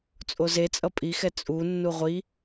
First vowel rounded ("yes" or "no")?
yes